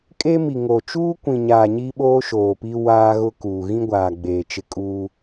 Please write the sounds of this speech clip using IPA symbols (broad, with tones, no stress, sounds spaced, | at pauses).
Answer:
kʼ eː˦ m i˨ ŋ oː˨ t͡ʃ uː˦ kʷ ĩ˨ ɲ aː˨ ɲ i˦ ɓ oː˦ ʃ oː˨ p i˦ w aː˦ ɣ ʊ˦ k uː˨ ɣ ĩ˦ ɡʷ aː˨ ɡ͡b eː˨ t͡ʃ ɪ˦ kʼ uː˦